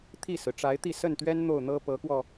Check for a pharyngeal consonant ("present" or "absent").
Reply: absent